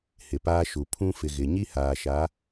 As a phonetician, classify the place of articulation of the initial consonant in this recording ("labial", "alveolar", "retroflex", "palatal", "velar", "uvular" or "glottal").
glottal